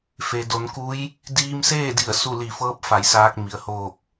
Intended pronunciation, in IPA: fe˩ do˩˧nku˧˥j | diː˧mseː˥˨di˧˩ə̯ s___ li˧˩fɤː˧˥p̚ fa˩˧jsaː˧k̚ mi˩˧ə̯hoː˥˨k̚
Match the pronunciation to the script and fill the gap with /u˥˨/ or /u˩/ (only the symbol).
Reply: u˥˨